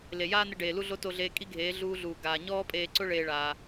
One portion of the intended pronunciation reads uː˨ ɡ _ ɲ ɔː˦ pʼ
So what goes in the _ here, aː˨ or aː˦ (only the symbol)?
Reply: aː˨